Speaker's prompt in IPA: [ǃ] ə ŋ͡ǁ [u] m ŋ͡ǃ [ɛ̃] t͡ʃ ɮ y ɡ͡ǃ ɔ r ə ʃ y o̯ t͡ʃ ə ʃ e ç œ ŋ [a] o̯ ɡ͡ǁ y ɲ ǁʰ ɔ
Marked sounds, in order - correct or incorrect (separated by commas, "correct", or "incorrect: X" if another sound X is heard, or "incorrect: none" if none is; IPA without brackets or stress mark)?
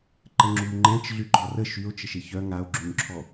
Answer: correct, correct, correct, correct